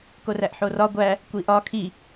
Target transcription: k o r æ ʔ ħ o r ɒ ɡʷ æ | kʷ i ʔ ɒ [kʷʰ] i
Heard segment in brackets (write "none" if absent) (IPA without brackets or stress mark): kʰ